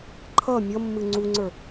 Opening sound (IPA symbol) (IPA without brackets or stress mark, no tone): ǃʰ